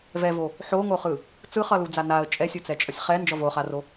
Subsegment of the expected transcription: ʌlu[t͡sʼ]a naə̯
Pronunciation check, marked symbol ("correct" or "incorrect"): incorrect